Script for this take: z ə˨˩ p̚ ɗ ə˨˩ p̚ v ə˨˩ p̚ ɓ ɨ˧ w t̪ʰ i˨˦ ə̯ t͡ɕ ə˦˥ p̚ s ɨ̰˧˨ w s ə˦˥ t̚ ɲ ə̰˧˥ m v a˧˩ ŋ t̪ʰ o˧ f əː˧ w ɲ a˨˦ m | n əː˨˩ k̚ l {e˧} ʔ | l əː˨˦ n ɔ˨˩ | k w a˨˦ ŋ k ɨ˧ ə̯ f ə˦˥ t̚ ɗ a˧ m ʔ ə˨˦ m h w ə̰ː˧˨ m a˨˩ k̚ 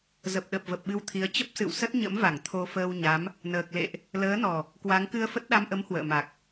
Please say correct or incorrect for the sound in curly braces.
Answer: incorrect